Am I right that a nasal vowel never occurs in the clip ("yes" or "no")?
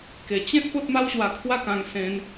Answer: no